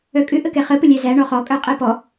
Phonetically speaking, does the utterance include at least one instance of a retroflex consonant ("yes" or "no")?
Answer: yes